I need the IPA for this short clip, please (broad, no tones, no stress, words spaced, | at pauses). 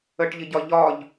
əʈʎɪɟɒ ʎɒʎ